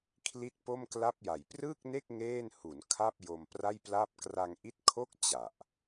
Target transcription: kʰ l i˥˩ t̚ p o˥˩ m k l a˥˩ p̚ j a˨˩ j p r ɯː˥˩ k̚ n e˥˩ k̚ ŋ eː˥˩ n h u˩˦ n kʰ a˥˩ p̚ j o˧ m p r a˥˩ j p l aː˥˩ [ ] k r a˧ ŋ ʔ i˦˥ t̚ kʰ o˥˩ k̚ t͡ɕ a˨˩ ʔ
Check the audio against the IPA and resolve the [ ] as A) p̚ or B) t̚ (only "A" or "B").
A